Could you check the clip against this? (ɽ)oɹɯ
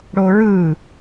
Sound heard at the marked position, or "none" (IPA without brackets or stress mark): ɽ